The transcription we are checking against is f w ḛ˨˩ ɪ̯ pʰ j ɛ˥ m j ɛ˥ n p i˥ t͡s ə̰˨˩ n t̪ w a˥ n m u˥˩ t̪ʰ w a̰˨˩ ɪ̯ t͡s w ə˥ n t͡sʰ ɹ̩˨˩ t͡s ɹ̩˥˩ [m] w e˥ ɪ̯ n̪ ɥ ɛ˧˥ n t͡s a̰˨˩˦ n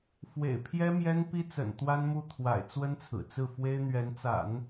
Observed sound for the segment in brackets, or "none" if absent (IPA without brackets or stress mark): f